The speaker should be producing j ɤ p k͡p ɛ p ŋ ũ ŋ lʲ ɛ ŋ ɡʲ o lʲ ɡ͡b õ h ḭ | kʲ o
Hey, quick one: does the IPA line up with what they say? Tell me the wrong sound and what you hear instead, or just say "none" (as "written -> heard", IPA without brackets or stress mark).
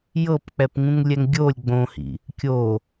none